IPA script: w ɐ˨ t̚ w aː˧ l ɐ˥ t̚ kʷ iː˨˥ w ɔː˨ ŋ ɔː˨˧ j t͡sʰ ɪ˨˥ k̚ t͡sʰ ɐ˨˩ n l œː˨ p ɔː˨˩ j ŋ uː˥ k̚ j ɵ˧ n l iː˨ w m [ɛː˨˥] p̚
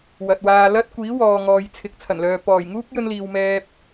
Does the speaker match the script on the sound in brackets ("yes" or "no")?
no